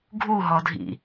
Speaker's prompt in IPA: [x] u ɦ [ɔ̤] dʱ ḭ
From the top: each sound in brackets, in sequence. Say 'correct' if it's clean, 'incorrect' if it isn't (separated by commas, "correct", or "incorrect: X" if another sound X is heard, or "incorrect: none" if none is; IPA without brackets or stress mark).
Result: incorrect: ɡʱ, incorrect: ɔ